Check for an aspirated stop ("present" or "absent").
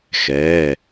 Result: absent